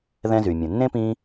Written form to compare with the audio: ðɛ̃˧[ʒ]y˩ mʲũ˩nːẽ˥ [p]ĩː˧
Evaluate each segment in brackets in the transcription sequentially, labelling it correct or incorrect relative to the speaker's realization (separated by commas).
incorrect, correct